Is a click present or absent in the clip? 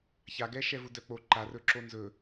present